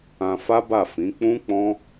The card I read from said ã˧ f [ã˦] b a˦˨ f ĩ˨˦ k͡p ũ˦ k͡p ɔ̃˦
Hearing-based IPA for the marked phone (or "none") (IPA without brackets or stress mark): a˦